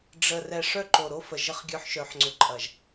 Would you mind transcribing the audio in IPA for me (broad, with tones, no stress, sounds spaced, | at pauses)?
ɖ͡ʐ ə˨ r ɛ˨ ʂ œ˦ ǃ o˨ ɾ o˦ f ə˨ ʒ ə˦ χ ɡʲ œ˦ ħ ʃ œ˨ ħ ŋ͡ǀ ʏ˨ ǃʼ ɐ˨ ʒ